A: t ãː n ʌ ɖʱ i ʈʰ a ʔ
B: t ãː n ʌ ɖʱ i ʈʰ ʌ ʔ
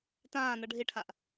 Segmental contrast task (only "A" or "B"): A